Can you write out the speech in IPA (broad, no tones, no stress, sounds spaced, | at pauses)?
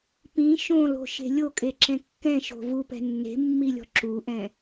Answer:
p ĩ ʃ õ l o̤ ʃ e̤ lʲ o kʼ e ǁ ɛ̃ kː ɛ̃ ʃ o̤ v u p ɛ̤ nː e̤ mː i lʲ ɔ̤ ǁ u ʔ ɛ̃